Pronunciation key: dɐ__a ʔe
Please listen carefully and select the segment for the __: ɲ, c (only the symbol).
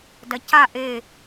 c